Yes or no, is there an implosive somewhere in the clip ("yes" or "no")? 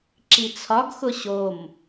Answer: no